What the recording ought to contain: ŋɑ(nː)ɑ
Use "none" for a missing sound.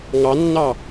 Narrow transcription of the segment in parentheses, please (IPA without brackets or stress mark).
nː